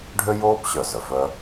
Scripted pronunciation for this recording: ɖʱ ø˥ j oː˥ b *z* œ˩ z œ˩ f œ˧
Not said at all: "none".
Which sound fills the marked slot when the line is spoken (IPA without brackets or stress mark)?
ɕ